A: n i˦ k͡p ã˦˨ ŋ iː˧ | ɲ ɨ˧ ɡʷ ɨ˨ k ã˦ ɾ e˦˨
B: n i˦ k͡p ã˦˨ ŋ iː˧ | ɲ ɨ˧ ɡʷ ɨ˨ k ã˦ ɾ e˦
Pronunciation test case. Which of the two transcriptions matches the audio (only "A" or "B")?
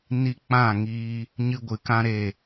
A